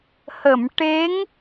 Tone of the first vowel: low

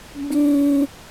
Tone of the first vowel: high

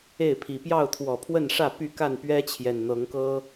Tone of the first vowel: falling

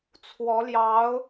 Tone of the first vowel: rising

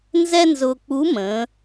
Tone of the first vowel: high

